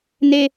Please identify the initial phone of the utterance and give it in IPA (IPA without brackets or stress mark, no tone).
n̪